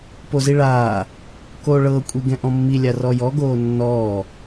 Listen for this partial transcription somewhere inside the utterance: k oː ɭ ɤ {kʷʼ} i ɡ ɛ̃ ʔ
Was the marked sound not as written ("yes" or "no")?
no